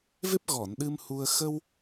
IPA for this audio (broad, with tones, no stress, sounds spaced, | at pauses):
v e˦˥ p̚ ɣ ɔ˨˩˨ n ɗ ɨ˧ m h u˧ ə̯ x ə˧ w